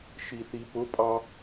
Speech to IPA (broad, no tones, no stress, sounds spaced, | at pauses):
ʃ i θ i p ʊ pʼ ɑ